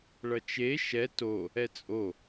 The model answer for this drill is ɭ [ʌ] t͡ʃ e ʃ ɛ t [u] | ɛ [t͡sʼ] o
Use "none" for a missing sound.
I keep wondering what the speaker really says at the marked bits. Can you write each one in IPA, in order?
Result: ʌ, o, t͡sʼ

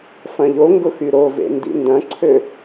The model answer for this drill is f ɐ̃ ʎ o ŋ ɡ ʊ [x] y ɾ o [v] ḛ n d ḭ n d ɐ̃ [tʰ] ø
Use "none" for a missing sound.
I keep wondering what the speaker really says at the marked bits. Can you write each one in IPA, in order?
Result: x, v, ǀʰ

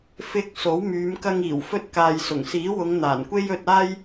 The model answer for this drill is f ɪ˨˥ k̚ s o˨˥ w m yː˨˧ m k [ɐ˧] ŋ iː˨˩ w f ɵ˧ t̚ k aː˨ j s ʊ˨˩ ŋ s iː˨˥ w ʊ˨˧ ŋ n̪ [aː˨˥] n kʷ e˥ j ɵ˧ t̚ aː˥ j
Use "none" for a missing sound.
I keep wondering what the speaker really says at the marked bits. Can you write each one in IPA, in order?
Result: ɐ˧, aː˨˩

